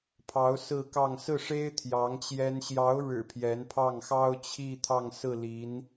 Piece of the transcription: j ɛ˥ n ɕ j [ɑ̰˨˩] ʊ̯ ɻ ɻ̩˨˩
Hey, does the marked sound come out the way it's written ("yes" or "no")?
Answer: no